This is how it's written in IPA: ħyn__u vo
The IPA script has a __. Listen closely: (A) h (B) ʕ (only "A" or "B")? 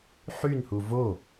A